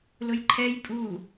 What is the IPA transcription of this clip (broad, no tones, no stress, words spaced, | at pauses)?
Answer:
lʊjǃʰɛj pʼu